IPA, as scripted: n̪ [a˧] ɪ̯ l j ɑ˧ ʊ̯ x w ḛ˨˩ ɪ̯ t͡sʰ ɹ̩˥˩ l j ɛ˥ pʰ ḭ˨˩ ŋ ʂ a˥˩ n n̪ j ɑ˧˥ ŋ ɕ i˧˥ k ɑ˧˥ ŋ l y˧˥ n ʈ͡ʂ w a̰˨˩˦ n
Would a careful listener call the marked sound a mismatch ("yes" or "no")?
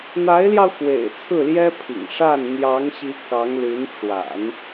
yes